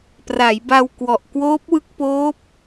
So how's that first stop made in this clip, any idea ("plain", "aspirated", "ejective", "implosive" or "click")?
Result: plain